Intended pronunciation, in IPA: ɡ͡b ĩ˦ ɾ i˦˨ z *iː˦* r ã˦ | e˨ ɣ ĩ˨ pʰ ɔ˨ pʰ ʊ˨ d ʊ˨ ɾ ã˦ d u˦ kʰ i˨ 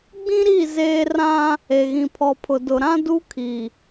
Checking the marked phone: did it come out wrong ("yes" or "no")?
yes